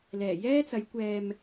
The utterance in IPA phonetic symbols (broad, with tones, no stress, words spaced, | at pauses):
lɛː˨˩jɛː˥t͡sɐ˨˧jkʷɛː˧m